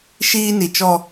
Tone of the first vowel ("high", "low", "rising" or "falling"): high